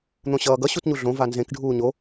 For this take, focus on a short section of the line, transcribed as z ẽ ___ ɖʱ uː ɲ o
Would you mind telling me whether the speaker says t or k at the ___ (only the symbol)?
k